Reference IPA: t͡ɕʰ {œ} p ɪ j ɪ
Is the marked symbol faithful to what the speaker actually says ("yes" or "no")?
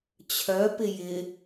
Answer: yes